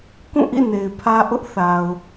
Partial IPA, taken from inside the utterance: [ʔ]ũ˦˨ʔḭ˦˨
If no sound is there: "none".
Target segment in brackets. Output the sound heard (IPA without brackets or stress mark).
k